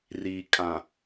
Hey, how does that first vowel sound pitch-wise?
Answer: low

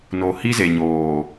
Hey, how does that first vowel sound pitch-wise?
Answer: low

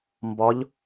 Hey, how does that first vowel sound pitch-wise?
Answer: rising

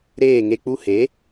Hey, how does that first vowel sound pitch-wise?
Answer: falling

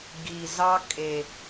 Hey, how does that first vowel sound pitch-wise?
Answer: low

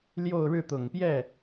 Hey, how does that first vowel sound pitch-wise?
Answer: falling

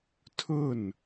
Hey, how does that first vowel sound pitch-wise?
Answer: falling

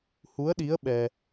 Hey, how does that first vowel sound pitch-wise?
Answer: rising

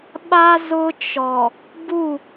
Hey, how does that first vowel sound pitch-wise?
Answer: high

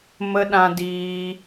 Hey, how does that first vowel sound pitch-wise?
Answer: high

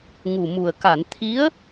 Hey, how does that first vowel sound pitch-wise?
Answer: low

